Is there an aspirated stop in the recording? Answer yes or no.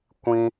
no